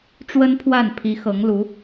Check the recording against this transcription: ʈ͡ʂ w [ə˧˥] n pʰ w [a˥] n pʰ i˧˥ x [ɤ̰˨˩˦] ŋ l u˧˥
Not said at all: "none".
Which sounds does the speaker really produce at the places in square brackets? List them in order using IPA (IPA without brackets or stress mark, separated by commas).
ə˥, a˥˩, ɤ˧˥